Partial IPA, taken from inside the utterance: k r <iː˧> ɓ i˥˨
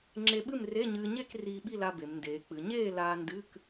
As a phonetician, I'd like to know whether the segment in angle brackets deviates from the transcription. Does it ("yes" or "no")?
no